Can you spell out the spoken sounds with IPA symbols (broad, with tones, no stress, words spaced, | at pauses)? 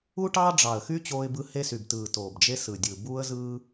u˦ʈɑː˦ɖ͡ʐɑ˨˩ə̯ xy˦ t͡ɕoː˦ɪ̯bɯ˦ he˦sy˨˩btɯː˨˩ toː˨˩bd͡ʒe˦sɯ˨˩dʲɯ˨˩ buː˦ə̯zɯː˦